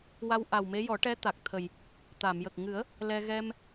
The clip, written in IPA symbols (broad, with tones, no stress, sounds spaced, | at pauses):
w a˧ w ʔ a˨˩ w m e˧˥ j ɔ˨˩˦ ʈ ɛ˧˥ t̪ a˨˩ k̚ t̪ʰ ə˨˩ j | t̪ a˨˩˨ m j ə˨˩ k̚ ŋ ɨ˨˩˦ ə̯ | l ɛ˧ ɣ ɛ˧ m